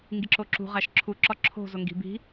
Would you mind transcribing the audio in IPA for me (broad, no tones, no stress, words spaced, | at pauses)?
ŋɡiǁoǁṳ ʁæʃǁʰu ǁɒǁʰo̤ zoŋɡi̤ bi̤